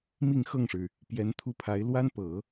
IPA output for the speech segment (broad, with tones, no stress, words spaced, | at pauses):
mi˥˧ŋxɤ˥˩ŋʂɻ̩˩ | pjɛ˧˥nt̪ʰu˥pʰa˧˥ɪ̯ lwa˥npɤ˨˩˦